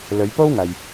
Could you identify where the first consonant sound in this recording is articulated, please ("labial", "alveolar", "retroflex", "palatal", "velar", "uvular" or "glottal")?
alveolar